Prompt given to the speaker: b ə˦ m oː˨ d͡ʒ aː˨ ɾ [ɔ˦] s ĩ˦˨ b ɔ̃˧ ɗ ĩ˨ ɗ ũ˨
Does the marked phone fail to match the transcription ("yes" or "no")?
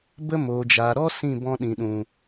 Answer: no